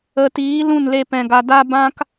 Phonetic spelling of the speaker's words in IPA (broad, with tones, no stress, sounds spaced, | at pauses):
ə˨ t iː˨˦ l ũ˦˨ n l e˧ p ɛ̃˨ ɡ a˨ d a˧ b ã˦ k